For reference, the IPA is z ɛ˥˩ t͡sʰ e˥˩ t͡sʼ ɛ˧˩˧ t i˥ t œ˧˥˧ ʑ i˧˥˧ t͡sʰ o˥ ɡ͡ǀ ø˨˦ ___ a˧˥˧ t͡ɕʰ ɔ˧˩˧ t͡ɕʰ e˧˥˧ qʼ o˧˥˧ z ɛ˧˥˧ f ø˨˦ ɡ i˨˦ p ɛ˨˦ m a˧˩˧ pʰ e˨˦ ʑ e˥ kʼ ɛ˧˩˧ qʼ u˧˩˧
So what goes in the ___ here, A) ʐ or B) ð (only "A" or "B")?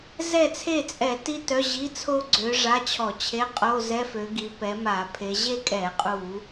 A